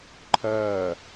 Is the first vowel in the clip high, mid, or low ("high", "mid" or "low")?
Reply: low